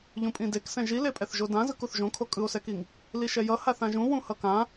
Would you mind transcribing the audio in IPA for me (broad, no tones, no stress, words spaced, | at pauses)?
ʎũpʼĩdeksɛ̃ ʒilepʼɛθ ʒodãzɯk uθʒõ kʰokʼɯo̯sɛkiŋ | liʃɛjʌ haθãʒũ wũhʌkã